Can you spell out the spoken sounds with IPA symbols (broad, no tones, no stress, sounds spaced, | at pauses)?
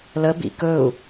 l ə b ḭ k ɵ u̯